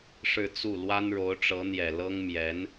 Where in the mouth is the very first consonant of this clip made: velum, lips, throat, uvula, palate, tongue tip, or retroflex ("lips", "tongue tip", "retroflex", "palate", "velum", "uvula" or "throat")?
retroflex